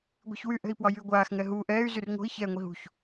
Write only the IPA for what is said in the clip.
ɡʷi̤çwyʔɛ̤i̯pwɒ jyɡʷaːxŋɛ ɦu ʔɛːy̯ zyrŋo̤i̯ çɛːŋʷiɦṳç

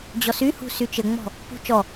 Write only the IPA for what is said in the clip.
d͡ʑɔsyhṳ syt͡ʃɘŋ͡mɔ̤ | pṳ t͡ʃɔ

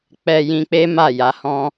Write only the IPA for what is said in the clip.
k͡pɛ˧ jĩ˧k͡pe˦ ma˦˨ ja˧hɔ̃˦

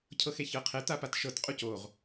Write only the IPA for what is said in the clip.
cʰɤxeçɤqʰɛ t̪apatʃɤt qʼucoʁ

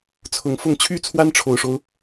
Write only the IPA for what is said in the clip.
t͡sʰʊ˧˥ŋfʊ˥˩ŋ t͡ɕʰy˥t͡sʰwa˥nʈ͡ʂʰo˨˩ʊ̯ʂo˦ʊ̯

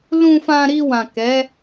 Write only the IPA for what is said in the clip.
lũ˧fã˧ɾi˧ wã˨kɛ˨˦

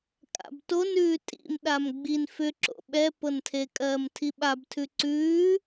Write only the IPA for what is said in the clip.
kʼa̰btonʉː tʼḭmɗam ɡ͡bin fʏǁo̰ ɓɛpɤntʰe kʼɜːmtʰiɓabtʰʉ ǀʉː

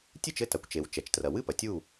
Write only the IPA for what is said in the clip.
tʲɨ˥˨t͡ʃɘ˥˨ ta˩kʷt͡ʃe˩w t͡ʃɛ˩t͡ʃtrɐ˩ wɨ˥˨pɐ˩ tʲu˥˨

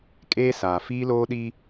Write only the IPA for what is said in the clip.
kʼeː˦saː˨ fiː˦loː˦ɗi˦

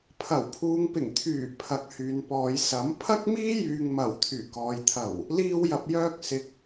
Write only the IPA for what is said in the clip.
pʰɐ˨˩wpʰuː˨˧ŋpɪ˨˩ŋ t̪ʰyː˨˩ pʰɐ˨k̚hyː˨npɔː˨˧jsɐ˨˥m pʰɐ˥k̚miː˥jyː˨ŋmɐ˨˩w t̪ʰyː˨˩kɔː˨jt̪ʰɐ˨˩w | liː˧wjɐ˨p̚jœː˧k̚ sɪ˨k̚

